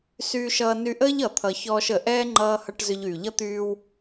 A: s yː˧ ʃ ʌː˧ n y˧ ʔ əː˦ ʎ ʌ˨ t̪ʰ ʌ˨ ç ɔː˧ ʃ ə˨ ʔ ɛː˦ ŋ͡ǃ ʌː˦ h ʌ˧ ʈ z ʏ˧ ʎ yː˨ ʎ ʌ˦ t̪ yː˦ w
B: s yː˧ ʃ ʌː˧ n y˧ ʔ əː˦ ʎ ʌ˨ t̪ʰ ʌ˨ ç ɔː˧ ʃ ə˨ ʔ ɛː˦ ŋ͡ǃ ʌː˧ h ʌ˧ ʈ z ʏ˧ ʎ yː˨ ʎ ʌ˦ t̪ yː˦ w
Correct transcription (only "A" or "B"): B